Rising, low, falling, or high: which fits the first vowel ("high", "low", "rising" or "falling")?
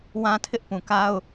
high